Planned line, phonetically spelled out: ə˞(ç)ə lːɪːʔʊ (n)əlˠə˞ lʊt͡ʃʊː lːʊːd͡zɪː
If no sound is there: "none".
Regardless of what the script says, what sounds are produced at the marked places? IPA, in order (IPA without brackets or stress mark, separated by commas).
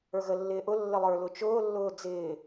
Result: ɣ, lː